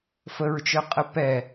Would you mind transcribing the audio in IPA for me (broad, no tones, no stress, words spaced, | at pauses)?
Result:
fəɹt͡ʃœqʼə pɛ